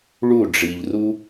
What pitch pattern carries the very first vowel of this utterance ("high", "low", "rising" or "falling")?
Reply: falling